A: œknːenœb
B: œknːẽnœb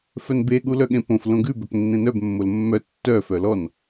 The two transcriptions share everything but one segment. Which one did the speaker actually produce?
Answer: B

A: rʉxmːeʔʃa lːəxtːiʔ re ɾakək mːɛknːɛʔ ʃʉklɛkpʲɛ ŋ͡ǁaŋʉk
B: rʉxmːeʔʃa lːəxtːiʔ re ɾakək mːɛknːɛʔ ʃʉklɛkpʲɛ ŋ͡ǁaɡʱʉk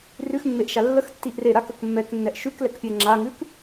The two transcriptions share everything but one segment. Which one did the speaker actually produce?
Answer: A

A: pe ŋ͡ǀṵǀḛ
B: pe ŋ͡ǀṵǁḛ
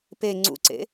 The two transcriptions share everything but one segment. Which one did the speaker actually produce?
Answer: A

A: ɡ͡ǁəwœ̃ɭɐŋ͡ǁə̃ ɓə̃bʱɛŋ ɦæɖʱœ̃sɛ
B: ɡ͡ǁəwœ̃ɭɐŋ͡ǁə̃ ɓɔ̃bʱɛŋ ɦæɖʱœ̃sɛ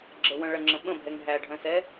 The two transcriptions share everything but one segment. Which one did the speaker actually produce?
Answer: A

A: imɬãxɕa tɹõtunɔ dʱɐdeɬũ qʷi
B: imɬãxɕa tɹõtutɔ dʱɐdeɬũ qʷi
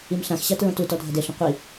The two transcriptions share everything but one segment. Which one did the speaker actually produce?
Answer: B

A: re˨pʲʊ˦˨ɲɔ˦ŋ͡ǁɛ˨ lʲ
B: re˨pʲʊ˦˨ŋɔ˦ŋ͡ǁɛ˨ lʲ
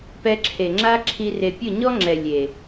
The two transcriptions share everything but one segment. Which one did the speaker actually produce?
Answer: A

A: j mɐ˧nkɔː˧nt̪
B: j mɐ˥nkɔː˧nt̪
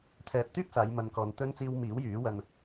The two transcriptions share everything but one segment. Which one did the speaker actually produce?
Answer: A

